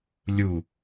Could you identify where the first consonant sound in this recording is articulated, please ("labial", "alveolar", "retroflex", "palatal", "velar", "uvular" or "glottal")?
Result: alveolar